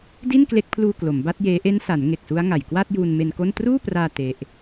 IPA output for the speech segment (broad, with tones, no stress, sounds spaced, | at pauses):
d i˥˩ n k l e˦˥ k̚ pʰ l uː˧ k l o˩˦ m b a˦˥ t̚ j eː˦˥ ʔ e˦˥ n s a˩˦ n ŋ e˨˩ k̚ s u˦˥ a̯ ŋ a˨˩ j k w a˥˩ t̚ j uː˧ n m e˧ n k o˥˩ n t r uː˥˩ p r aː˧ t e˦˥ ʔ